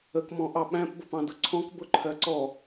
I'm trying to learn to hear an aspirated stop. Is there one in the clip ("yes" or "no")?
yes